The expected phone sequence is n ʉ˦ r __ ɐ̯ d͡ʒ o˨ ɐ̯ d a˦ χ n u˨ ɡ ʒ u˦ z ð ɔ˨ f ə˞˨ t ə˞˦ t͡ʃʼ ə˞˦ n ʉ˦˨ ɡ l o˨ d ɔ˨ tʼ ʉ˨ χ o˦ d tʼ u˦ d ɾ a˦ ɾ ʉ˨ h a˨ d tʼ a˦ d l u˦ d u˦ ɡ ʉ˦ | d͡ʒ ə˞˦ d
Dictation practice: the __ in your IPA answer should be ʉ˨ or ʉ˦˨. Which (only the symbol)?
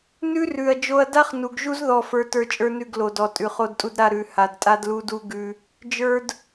ʉ˨